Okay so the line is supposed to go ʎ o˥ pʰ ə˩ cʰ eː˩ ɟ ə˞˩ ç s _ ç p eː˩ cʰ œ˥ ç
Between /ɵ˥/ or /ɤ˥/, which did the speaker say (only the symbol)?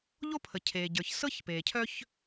ɤ˥